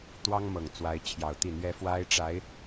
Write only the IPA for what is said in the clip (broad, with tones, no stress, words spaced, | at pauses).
t̪wɑ˥ŋmɤ˨˩ŋ t͡swa˧˥ɪ̯t͡ɕʰjɑ˨˩ʊ̯t̪i˥˩n̪ɥɛ˥ fwa˥ɪ̯ʈ͡ʂa˧˥ɪ̯